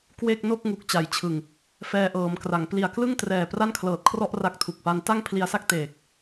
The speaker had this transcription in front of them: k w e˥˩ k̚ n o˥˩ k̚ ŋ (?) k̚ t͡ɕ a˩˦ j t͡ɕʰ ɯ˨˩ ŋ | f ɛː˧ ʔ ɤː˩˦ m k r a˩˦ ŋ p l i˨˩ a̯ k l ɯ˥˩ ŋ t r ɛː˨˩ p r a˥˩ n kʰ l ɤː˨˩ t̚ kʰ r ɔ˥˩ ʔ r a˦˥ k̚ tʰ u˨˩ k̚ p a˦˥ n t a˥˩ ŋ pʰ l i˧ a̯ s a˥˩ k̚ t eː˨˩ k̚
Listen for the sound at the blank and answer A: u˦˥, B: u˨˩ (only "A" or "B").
B